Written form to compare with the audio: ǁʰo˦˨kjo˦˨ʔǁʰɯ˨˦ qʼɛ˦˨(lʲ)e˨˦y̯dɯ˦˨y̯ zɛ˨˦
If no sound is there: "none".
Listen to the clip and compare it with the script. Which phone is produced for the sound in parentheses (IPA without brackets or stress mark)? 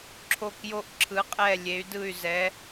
lʲ